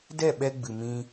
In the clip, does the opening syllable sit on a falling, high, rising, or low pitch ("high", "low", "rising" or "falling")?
falling